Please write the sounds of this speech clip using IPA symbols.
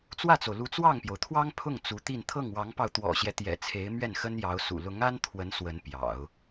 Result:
t͡swä˥˩t͡so˩ʊ̯lu˧˥ t͡swɑ˥˩ŋpjo˩ʊ̯t̪ʰwɑ˥ŋ pʰʊ˥˩ŋ t͡su˧˥t̪i˥˧n t̪ʰɤ˥˩ŋwɑ˧˥ŋpɑ˧ʊ̯ t̪wɔ̰˨˩ɕjɛ˦t̪jɛ̰˨˩ t͡sʰe˧˥ɪ̯mɥɛ˥˩n xə˥njɑ˧˥ʊ̯sṵ˨˩ lʊ˧˥ŋa˥n t̪ʰwə˧˥n swə˧˥npjɑ̰˨˩˦ʊ̯

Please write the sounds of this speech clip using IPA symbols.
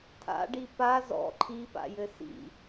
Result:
tʰa̰ɖi pa zɔ̰ ǃʰipa̰jɘ sḭ

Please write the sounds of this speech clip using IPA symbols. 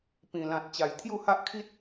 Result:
pĩ˨˩lã˨t̚ t͡ɕa˨˩j t̪ʰju˥˧ha˦ʔkʰi˦t̚

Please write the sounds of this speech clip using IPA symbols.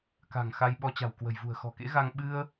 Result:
ka̤˨˩ŋxa˧j ɓɔ˧t͡ɕa̤˨˩wkwə̤˨˩j vṳ˨˩ə̯xɔ̤˨˩kḛ˧˥ɣa˧ŋ ɓɨ˧ə̯

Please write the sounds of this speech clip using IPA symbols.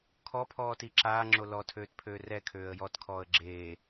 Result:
kʰɔpʰɔːti ǁaːŋ͡ǁo lɔtʰøːtpʰøː rɛkʰøːə̯ jɔtkʰɔːə̯ ɡ͡ǁeː

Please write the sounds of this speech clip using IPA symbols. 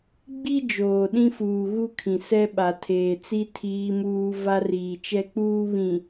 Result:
ɡ͡bi˦ d͡ʒoː˨ɗĩ˦fuː˨ ɣu˦kʰĩ˨ sɛ˦ɓa˨tʰeː˨t͡si˦ tʰiː˦muː˦ va˦riː˨t͡ʃɛ˦k͡puː˦ βĩ˨

